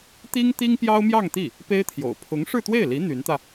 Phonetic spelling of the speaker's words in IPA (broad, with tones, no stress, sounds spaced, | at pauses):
t̪ i˥ ŋ t̪ i˥ ŋ p j ɑ˥ ʊ̯ m j ɑ˥˧ ŋ t̪ i˥˩ | p e˥ ɪ̯ t̪ʰ j o̰˨˩ ʊ̯ pʰ ʊ˧˥ ŋ ʂ ɻ̩˥˧ t̪ w e˥˩ ɪ̯ l i˧˥ n̪ y˧˥ n t̪ ä˧